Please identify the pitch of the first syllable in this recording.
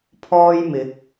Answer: high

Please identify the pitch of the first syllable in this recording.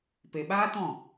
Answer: low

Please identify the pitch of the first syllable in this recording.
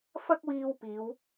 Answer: high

